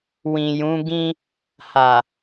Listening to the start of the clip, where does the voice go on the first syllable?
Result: low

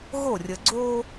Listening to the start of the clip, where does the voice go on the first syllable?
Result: falling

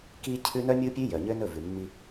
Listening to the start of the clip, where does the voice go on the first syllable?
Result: high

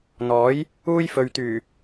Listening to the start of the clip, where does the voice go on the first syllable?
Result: rising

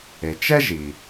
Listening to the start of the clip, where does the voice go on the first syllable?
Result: low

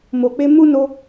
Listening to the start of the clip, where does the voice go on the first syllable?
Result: low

